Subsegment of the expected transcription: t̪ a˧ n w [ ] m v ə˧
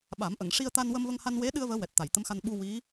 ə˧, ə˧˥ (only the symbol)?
ə˧